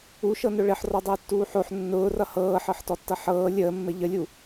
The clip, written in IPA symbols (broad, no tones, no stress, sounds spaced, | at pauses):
u ʃ ɤ n ʊ ɭ ɘ ħ r ɔ dˤ əː tː uː ħ o ħ nː ʊː r ʌ h ɤː ħ ɤ ħ t ɔ tː ʌ ħ ɤː lʲ əː mː ɘ ʎ ə lʲ u